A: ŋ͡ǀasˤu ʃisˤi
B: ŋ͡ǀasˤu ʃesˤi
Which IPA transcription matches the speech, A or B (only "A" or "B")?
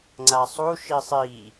A